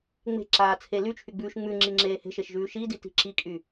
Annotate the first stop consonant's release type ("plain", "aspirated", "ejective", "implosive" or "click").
click